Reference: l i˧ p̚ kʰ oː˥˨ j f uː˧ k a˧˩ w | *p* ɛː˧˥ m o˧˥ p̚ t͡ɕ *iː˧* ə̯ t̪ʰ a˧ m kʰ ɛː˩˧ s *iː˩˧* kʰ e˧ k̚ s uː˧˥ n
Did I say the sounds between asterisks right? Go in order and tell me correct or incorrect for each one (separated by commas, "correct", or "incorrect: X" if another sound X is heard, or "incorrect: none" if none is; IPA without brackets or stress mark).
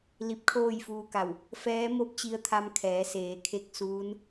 incorrect: f, incorrect: i˧, incorrect: eː˩˧